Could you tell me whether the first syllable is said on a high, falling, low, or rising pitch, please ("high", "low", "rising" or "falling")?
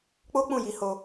high